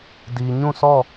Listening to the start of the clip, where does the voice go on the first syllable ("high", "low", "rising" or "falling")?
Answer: low